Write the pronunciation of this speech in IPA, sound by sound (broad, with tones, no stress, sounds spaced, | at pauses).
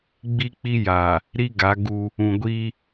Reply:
ɡ͡b i˦ k͡p i˦ j aː˨ | ɾ i˦ ɡ a˨˦ ɡ u˦ | ũ˨ ɡʷ iː˦